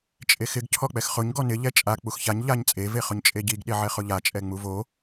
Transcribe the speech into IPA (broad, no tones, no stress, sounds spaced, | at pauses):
t͡ʃʼ e x ɪ ɡ cʰ ɔ k͡p ɛ x χ ʊ ɲ ɡ ɔ n ɪ ʎ ɛ t͡ʃʼ a k͡p u x ç a ɲ ʎ a ɲ t͡sʼ e v e χ ʊ ɲ t͡ʃʼ e ɟ i ɡ ɗ e ʕ ɛ χ ʊ ʎ a t͡ʃʼ ɛ ŋ͡m u v o